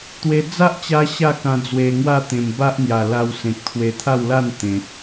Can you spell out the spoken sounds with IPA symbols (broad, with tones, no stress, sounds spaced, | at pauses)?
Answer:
t̪ w e˧ d͡z a˦ ʔ t͡ɕ a˧ ɕ a˥˧ k ã˧ d͡z w e˧ ŋ w a˥˧ t̪ ẽ˨˩ m b a˦ ʔ n̪ j a˨˩ l a˧ w s ẽ˨ k̚ t̪ʰ w e˧ t̪ʰ a˥˧ w l a˥˧ n t̪ ẽ˨ t̚